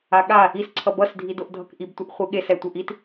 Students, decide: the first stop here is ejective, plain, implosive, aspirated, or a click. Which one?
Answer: implosive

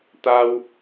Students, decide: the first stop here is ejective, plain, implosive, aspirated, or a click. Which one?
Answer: plain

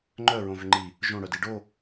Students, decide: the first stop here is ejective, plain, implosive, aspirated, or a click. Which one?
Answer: click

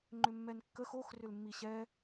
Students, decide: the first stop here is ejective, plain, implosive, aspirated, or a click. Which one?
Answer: click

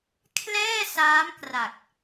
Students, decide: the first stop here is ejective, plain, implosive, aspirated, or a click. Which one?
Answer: aspirated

